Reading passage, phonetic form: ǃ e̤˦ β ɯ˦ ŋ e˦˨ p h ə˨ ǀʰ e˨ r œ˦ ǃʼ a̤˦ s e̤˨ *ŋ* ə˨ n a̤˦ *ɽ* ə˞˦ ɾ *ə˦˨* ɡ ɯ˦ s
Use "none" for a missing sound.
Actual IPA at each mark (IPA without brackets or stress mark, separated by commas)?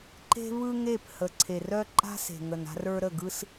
ŋ, r, ə˦˨